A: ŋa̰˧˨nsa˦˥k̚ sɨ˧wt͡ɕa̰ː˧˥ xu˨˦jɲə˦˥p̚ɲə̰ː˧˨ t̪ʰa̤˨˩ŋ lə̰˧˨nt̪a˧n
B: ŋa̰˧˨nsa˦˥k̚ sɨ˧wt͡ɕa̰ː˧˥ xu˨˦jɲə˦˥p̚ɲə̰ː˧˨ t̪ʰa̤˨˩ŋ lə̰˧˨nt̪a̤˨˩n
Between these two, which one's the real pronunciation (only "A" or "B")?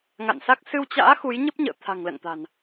B